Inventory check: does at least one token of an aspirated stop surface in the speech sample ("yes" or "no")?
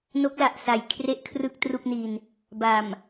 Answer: yes